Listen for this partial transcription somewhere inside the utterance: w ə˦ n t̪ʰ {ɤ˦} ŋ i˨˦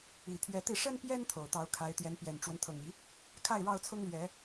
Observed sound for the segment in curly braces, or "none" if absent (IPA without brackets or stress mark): ɤ˨˩